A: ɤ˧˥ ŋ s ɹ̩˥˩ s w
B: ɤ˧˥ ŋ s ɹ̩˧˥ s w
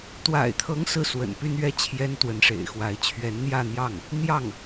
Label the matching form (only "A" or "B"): A